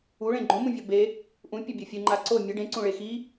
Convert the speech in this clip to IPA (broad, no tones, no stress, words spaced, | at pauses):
uɭẽ ɡ͡ǃõmũvʲɔ be | ʔũpʲɐbʲɐ fʲɨŋ͡ǃa ǀo mʲɘ ɖẽǀũɭe xi